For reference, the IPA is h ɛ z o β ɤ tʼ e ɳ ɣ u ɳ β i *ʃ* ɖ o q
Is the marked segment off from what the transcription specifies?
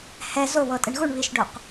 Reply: no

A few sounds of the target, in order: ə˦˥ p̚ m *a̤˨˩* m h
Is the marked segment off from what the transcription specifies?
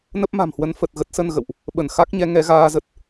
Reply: no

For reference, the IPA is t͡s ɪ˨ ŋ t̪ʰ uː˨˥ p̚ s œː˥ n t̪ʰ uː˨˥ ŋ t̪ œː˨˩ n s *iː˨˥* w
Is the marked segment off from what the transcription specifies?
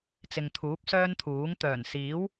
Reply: no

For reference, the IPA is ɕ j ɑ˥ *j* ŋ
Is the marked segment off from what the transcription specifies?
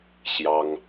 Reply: yes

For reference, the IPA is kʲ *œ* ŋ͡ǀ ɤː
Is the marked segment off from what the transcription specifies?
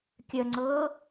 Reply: no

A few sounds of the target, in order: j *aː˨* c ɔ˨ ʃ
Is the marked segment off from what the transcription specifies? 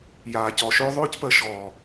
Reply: no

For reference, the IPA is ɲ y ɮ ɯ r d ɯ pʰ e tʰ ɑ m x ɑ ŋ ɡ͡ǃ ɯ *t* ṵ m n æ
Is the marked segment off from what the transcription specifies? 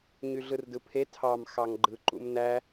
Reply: yes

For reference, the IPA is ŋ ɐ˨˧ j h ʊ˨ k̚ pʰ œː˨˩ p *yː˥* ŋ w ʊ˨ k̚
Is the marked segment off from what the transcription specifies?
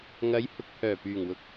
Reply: yes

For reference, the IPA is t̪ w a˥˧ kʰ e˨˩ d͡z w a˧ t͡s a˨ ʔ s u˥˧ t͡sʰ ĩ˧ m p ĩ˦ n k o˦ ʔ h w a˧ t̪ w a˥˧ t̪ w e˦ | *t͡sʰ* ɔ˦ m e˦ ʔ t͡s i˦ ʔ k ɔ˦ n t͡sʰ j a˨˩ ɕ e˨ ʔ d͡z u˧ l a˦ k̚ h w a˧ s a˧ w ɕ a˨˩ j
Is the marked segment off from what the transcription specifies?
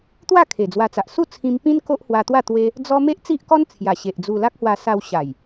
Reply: yes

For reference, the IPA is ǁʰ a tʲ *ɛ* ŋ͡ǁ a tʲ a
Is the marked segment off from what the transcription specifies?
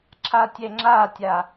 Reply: no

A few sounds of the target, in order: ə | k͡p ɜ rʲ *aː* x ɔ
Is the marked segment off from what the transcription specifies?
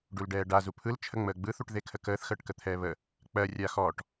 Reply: no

